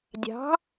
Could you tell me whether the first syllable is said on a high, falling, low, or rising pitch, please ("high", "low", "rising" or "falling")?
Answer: rising